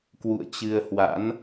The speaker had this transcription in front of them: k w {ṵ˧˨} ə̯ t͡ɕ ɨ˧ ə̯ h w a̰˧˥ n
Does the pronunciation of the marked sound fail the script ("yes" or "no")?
no